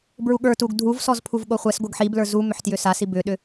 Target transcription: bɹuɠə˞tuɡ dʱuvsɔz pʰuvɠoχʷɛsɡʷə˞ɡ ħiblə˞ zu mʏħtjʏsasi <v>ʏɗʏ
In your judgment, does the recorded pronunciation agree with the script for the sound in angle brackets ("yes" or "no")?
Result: no